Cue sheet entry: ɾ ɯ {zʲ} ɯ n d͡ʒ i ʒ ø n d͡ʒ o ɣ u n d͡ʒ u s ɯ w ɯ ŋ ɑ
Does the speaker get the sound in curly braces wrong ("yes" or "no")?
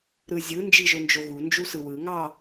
no